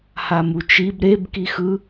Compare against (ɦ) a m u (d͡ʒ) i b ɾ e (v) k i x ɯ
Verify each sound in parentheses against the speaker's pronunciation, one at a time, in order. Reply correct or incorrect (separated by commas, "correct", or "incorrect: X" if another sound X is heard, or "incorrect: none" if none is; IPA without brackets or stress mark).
incorrect: h, incorrect: t͡ʃ, incorrect: b